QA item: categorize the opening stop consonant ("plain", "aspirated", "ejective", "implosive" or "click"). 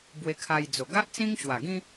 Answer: plain